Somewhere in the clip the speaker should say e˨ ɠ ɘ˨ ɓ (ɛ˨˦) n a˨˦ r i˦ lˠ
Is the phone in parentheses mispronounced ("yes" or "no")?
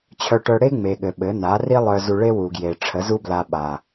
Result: yes